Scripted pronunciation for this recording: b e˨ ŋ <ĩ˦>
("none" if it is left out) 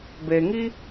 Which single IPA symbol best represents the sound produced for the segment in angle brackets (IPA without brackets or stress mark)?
i˦